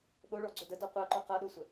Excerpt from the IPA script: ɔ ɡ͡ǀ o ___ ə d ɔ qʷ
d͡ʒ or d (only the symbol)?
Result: d